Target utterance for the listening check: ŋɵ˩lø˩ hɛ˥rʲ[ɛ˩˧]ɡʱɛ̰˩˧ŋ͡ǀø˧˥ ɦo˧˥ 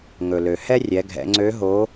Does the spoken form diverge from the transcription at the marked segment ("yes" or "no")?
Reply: no